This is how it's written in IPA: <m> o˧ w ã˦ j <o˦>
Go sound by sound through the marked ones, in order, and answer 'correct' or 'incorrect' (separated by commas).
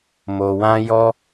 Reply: correct, incorrect